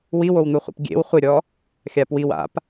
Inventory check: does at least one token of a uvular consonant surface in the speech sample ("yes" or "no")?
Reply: yes